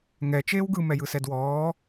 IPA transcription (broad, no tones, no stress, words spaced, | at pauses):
ŋɛ t͡ʃeːwɡɯ mɛjɯsɛdwɔː